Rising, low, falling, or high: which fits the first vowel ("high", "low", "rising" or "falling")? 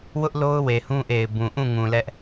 high